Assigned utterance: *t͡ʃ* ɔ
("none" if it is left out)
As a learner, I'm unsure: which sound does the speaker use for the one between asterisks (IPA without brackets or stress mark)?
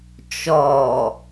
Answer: t͡ʃ